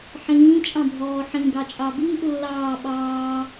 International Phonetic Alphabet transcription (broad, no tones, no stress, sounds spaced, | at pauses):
ħ ĩː t͡ʃʼ ɑ̃ bʱ ɔː ħ ĩ ɡ ɑ t͡ʃʼ ɑ b iː ʔ lː ɑː ɓ ɑː